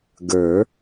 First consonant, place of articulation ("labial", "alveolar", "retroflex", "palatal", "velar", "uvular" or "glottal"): velar